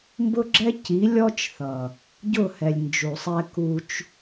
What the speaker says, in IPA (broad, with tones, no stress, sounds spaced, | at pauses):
m b ʊ˦ ɡ͡ǁ ɛ˦ c i˨˦ lʲ ɔ˦ t͡ʃ θ ʌ˨ | ɟ ʊ˦˨ h ɛ˨ lʲ n d͡ʒ u˨ sˤ ɛ˧ k u˧ t͡ʃ